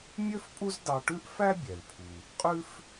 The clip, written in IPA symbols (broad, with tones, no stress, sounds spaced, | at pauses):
mʲ ø˥ f pʼ u˥ z d ɑ˧ ʈ ʉ˥ ʔ f æ˥ bʲ ɛ˩ l pʰ u˩ | qʼ ʉ˥ f